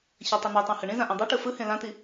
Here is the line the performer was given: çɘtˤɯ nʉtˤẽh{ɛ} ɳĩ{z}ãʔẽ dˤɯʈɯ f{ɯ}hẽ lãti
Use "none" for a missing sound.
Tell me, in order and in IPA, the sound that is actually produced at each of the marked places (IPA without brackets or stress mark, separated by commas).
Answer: ɘ, z, ɯ